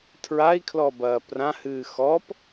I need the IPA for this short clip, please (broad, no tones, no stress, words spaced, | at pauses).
tʰɹai̯kʰlɔbɐː prãhɨː xɔp